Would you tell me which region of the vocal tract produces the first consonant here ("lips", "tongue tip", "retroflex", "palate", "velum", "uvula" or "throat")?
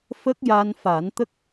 lips